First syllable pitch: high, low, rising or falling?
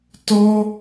high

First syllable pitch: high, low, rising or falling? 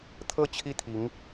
falling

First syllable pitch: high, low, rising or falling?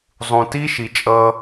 low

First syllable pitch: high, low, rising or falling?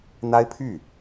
high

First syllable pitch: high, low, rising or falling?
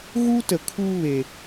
high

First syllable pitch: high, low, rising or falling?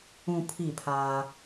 low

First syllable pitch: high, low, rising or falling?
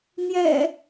low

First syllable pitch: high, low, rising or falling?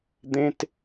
high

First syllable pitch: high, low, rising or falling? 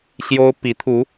high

